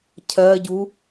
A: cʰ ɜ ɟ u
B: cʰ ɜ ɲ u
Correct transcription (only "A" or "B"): A